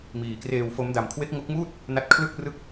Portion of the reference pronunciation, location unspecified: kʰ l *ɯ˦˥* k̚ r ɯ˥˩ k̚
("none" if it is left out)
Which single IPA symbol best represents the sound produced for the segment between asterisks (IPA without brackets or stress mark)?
ɯ˥˩